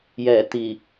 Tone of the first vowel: low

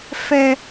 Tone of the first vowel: high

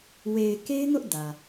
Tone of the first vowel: low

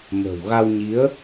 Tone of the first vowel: low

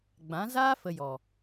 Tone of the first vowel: rising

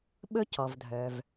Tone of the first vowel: high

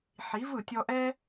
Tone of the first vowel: rising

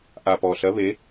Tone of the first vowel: low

